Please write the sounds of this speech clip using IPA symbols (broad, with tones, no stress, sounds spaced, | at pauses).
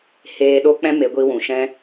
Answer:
h eː˧ ɗ o˦ k͡p ɛ̃˦ m e˨˦ ɡʷ i˧ w ũ˨ ʃ ɛ̃˧